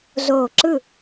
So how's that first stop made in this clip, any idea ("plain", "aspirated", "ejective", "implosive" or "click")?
click